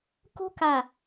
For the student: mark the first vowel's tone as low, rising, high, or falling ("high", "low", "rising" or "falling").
high